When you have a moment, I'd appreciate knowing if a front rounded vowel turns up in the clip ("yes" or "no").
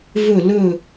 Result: no